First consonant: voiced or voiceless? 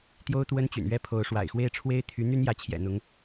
voiceless